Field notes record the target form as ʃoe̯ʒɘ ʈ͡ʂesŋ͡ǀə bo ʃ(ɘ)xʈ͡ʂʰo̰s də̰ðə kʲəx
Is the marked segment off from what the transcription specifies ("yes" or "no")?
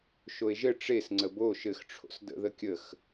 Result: no